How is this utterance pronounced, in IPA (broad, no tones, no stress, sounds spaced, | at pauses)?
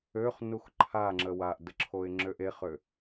ø χ n u x ǃʰ a ŋ͡ǁ ə w a ʔ d ə ǁʰ o ɪ̯ ŋ͡ǁ ø ʔ e χ ø